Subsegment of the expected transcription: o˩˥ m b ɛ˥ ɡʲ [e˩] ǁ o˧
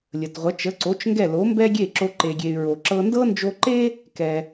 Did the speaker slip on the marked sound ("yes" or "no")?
yes